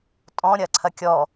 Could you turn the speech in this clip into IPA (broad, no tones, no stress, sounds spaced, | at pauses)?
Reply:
tʼ ɔ̃ ɾʲ ɐ ǀʰ ɐ kʲ ɔ